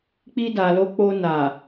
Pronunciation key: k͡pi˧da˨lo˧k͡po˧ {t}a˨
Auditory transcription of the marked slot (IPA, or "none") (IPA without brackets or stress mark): n